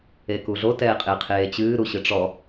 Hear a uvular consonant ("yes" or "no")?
yes